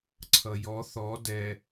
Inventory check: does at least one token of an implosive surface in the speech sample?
no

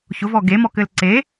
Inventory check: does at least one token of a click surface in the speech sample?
yes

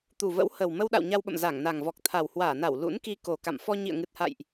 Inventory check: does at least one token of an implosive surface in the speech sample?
yes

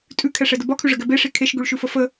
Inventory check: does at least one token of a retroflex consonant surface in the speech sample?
yes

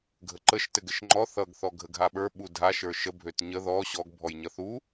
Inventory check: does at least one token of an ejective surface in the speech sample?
no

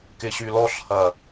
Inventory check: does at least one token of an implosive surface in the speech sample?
no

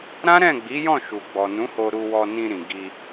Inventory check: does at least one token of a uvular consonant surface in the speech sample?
no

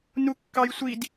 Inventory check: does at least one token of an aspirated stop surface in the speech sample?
no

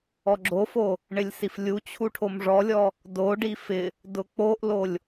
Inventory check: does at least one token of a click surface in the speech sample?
yes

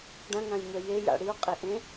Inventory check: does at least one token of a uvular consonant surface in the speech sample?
yes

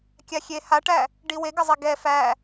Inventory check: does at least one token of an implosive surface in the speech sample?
no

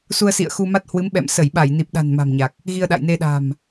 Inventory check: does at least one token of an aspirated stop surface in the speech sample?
no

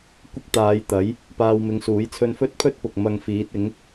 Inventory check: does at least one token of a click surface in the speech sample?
no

